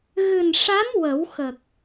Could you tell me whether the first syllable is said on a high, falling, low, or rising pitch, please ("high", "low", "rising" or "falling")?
low